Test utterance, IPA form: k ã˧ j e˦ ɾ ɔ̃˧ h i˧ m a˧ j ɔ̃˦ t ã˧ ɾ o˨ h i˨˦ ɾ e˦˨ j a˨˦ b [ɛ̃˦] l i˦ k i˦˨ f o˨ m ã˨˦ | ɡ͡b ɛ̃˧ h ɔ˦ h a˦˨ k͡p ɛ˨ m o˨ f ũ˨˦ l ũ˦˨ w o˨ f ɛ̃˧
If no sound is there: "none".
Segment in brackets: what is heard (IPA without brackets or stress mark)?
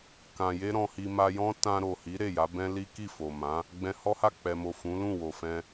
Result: ɛ̃˦